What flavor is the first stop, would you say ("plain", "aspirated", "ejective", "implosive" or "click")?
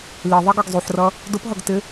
plain